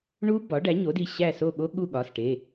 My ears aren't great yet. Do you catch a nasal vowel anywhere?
no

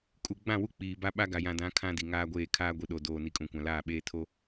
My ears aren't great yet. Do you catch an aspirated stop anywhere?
yes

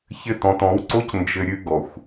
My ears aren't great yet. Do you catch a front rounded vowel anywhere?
no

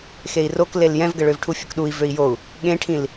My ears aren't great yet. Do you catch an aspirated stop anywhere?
yes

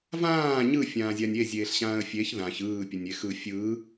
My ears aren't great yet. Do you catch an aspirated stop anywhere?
no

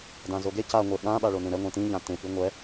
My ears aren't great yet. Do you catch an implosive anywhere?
yes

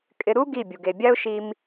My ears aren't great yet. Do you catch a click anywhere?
no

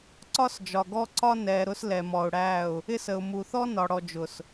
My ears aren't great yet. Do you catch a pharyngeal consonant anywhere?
no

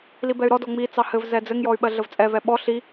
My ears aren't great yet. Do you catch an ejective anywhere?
yes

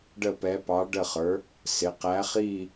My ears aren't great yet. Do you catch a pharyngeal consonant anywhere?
no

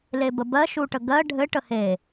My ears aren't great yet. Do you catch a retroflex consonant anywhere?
yes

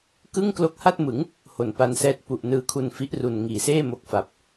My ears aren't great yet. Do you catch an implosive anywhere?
no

